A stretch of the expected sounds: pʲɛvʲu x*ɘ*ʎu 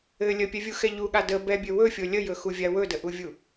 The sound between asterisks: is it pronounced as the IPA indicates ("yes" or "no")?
no